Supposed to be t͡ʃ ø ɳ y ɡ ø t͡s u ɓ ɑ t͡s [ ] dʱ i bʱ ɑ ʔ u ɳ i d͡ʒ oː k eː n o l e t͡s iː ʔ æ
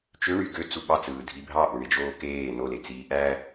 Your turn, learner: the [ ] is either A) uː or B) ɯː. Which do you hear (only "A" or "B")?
B